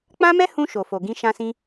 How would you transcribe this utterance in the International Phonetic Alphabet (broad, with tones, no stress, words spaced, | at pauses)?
k͡pã˦mɛ˦hũ˧ ʃo˨fo˨ ɡĩ˧ʃã˧sĩ˧